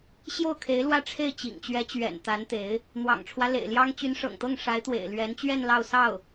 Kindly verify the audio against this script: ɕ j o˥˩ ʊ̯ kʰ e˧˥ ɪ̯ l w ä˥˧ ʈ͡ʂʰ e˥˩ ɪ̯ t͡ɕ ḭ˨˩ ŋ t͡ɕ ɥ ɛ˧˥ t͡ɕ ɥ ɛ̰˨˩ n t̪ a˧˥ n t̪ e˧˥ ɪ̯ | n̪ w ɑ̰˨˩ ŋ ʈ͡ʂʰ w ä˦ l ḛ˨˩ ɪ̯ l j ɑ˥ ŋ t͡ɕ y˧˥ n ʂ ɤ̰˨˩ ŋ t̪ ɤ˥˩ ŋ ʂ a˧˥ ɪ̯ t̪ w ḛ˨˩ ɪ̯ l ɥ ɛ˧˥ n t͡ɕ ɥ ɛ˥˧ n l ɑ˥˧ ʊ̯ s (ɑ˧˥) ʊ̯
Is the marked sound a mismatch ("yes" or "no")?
yes